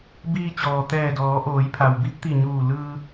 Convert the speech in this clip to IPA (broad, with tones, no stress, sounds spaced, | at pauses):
b iː˧ t͡ɕ ɔː˩ t̪ ɛː˧˩ d ɔː˩˧ ʔ oː˩˧ j pʰ a˩ w b i˧˥ p̚ t̪ i˧˩ ɲ uː˧˩ l ɯː˧